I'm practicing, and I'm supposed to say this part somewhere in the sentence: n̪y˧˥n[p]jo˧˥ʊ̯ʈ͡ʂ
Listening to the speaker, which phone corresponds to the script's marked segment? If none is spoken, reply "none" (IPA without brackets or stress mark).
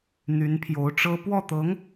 pʰ